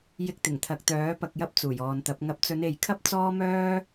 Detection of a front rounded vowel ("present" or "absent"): present